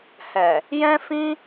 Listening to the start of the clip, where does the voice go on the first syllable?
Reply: low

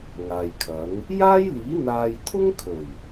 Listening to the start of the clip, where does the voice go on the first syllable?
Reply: low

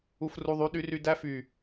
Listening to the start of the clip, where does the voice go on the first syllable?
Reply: high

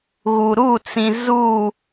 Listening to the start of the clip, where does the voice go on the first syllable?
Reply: low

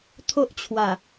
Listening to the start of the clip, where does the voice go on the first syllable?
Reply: high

